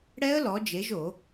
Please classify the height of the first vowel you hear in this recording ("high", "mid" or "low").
mid